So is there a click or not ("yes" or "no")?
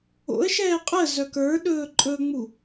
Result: yes